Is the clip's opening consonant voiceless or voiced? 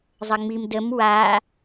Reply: voiced